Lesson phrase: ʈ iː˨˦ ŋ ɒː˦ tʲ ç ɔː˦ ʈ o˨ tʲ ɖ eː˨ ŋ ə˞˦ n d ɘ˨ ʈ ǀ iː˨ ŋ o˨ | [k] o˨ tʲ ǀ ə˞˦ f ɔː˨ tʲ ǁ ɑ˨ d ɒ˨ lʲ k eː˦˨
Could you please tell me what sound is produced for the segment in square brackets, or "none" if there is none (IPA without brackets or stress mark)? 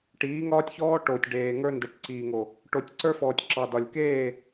ʈ